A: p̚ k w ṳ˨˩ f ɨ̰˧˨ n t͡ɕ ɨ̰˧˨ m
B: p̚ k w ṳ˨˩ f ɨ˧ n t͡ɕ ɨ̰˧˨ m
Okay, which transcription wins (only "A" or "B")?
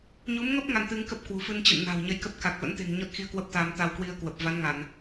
B